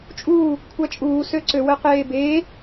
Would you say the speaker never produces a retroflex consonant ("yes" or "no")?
yes